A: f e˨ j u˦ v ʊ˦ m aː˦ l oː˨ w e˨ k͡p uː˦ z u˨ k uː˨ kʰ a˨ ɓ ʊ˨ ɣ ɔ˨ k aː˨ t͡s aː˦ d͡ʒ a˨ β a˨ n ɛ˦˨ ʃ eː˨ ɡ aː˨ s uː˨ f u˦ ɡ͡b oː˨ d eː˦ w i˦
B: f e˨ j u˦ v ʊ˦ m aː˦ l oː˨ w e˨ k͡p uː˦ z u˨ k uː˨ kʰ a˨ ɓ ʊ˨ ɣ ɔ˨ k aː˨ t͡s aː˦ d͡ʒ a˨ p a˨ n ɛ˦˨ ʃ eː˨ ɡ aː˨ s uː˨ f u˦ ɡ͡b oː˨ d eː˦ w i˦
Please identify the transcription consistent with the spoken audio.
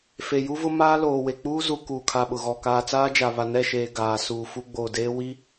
A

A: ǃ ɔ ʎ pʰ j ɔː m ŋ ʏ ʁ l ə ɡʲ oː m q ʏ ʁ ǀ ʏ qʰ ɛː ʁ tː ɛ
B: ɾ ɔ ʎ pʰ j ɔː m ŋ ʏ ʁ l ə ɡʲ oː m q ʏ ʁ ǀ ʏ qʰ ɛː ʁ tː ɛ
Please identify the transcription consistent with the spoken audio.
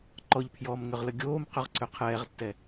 A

